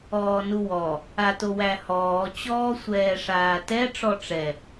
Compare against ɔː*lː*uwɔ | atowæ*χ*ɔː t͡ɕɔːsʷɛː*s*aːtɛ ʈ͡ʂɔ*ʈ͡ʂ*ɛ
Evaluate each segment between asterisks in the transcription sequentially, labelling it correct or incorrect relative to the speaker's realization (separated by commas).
incorrect, incorrect, incorrect, correct